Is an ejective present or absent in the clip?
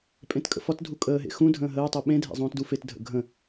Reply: present